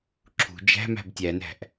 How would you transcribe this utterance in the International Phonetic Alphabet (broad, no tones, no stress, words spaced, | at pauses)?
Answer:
ǁʰṳ d͡ʒæ̤mæ̤b tʲænæ̤ʔ